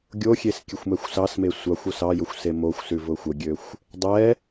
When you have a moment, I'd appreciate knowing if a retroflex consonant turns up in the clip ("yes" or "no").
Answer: no